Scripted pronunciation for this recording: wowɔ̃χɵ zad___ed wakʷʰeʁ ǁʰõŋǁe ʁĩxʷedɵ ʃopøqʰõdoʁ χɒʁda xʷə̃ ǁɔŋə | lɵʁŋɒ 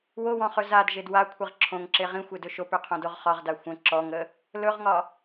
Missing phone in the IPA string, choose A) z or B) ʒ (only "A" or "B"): B